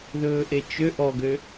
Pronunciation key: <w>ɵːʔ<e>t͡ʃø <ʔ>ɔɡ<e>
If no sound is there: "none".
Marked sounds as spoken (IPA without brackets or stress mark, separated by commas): ð, e, ʔ, ø